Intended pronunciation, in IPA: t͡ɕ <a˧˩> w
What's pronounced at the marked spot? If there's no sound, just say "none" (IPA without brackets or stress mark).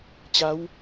a˧˥